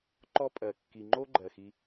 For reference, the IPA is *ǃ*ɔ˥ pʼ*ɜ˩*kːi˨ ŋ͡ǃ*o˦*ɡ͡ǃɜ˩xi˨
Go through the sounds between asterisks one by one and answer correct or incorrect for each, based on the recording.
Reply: correct, correct, incorrect: o˥

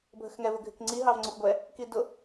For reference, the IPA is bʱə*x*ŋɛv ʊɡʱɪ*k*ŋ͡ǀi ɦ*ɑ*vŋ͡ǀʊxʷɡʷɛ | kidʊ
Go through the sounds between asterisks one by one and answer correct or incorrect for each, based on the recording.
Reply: correct, correct, correct

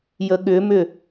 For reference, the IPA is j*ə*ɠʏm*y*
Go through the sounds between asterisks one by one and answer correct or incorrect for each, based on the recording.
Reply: correct, incorrect: ʏ

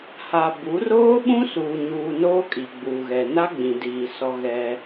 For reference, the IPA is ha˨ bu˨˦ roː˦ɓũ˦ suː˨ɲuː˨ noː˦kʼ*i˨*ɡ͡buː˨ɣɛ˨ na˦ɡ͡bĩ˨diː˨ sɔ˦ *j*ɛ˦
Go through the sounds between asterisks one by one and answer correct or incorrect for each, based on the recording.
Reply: correct, incorrect: ɣ

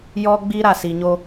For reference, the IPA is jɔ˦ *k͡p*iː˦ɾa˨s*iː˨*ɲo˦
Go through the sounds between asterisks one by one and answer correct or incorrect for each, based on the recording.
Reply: incorrect: ɡ͡b, incorrect: i˨

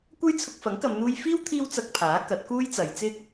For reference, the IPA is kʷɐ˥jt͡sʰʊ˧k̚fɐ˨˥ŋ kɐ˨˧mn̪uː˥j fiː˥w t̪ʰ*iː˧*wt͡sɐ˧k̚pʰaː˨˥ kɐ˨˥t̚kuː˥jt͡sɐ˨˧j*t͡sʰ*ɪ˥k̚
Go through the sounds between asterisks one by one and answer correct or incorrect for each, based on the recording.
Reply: incorrect: iː˥, incorrect: t͡s

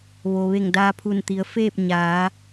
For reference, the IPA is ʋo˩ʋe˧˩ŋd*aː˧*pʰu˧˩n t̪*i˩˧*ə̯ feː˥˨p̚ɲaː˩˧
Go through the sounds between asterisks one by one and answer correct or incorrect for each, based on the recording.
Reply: correct, correct

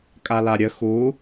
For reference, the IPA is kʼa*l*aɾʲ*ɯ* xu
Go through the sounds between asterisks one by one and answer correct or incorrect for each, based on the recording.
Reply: correct, incorrect: ə

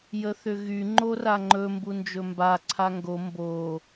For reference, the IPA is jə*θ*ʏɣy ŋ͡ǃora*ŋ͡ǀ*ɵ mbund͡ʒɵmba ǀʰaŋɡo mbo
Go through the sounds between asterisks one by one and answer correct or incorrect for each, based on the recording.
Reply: correct, incorrect: ŋ͡ǃ

